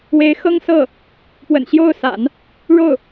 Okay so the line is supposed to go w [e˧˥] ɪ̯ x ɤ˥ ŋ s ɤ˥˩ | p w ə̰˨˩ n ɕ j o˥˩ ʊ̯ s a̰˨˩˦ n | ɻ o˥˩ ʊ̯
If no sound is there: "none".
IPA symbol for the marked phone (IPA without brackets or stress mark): e˧˥